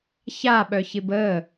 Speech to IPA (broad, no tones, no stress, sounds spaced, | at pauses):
ç a ɓ œ ç ɪ b ə